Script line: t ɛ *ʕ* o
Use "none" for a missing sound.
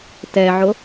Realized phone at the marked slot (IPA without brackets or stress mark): ʕ